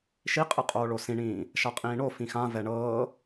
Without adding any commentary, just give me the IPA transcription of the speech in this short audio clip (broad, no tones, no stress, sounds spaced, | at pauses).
ʃ i qʼ ɯ qʼ oː ɭ o s ĩ ɳ ĩː | ʃ a qʼ ĩː ɳ o f ĩ x ã v ɛ ɳ ɤː